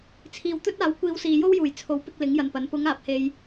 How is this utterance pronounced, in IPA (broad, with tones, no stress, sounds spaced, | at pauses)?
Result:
t͡sʰ iː˨ w t̪ ɵ˥ t̚ aː˨˥ w kʷ iː˧ w s iː˨ j o˥ w j uː˨˩ j t͡sʰ o˨˥ w p ɪ˧ k̚ l ɪ˨˥ ŋ j ɐ˨ n p ɐ˨˥ n p ʊ˨˧ ŋ aː˨˥ p̚ h e˧ j